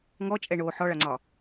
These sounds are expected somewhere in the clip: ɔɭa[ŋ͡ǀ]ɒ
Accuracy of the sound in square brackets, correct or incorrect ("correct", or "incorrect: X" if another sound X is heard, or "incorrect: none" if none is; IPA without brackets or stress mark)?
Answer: correct